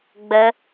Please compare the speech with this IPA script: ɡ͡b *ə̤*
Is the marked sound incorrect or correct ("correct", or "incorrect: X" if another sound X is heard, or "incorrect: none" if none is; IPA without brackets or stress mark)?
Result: incorrect: ə